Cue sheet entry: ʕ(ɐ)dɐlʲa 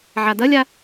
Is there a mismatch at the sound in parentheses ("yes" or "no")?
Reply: yes